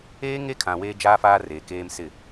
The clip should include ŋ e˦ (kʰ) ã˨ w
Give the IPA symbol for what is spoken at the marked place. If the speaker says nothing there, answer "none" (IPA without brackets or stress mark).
kʰ